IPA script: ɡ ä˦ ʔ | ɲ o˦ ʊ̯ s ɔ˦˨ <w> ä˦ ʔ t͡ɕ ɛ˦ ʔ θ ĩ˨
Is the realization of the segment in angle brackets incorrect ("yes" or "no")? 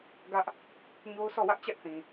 no